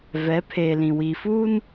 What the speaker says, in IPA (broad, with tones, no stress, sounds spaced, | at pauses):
v ɛ˨˦ pʰ eː˨ l ĩ˨ w i˨ f uː˦ n